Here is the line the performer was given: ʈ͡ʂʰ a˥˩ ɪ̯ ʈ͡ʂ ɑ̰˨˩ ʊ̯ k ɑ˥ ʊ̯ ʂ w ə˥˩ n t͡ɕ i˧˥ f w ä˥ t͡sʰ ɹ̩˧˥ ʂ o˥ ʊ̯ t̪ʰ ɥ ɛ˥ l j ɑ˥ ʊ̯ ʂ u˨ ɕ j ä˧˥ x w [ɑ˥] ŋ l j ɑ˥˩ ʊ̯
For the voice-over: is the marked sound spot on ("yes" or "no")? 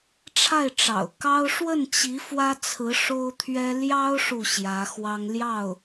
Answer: yes